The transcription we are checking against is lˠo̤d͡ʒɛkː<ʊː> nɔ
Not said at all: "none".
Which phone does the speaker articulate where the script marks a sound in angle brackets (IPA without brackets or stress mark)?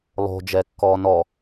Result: ɔː